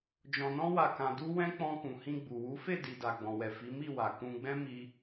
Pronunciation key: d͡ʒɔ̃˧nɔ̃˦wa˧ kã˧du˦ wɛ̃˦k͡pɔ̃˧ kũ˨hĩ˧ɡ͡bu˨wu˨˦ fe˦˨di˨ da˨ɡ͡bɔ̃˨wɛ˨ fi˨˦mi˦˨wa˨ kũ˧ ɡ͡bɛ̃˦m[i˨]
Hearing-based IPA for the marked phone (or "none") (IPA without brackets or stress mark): i˧